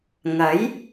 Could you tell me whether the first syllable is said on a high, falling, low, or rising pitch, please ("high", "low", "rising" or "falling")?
rising